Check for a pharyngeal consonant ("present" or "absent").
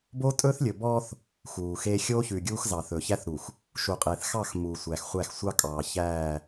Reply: absent